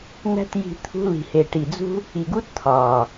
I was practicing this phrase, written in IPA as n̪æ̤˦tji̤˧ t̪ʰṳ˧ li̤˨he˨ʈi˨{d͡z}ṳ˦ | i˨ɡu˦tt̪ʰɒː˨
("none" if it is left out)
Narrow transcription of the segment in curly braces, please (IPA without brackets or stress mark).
d͡z